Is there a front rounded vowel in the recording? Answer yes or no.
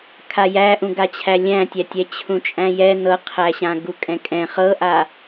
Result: no